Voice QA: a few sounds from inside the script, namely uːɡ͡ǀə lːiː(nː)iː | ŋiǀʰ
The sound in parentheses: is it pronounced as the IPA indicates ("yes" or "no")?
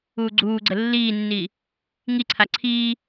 yes